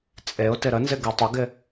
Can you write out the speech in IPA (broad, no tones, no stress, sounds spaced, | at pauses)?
t͡sʼ e ʊ̯ t ɪ ɾ ə n z ɪ ɡ e tˤ ɪ ɡ ɪ